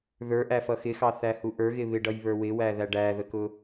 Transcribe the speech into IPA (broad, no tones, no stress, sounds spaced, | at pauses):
ð ə˞ ʔ æ f ʌ x ɪ x ɑ θ æ h u ʔ ə˞ ɣ ɪ β ɪ ɖ ʌ j β ə˞ w ɪ w æ ð æ ɖ æ ð ə k ʊ